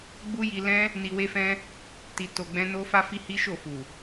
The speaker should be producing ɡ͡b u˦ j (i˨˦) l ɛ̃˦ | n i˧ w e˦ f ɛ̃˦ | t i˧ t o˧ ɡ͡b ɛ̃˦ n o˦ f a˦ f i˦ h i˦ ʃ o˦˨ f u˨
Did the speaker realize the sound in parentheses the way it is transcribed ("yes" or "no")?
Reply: no